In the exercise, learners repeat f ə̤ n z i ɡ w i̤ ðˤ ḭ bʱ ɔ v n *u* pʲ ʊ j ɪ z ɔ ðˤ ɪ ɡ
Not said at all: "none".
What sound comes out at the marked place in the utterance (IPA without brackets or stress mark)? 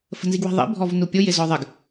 u